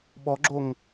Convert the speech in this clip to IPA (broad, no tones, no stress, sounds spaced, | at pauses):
ɓ ɔ ɡ͡ǁ o ŋ